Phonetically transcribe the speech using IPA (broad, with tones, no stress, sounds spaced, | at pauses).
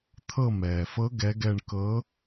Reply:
t̪ʰ ɤ˧˩ m ɛː˩ f ɤ˨˦ ɡ ɛ˨˦ ɡ ɛ˧˩ ɳ k ɤ˨˦